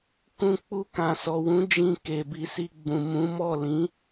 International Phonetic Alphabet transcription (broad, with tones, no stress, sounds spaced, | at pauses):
k ũ˧ k͡p u˧ k ã˨ s ɔ˨ w ũ˨˦ d͡ʒ ĩ˧ k e˨ b i˧ s i˧ ɡ͡b ũ˨ m ũ˨˦ m ɔ˦˨ l ĩ˨˦